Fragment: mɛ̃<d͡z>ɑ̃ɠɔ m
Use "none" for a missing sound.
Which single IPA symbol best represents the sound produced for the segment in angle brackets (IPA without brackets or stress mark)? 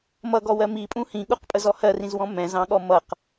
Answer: z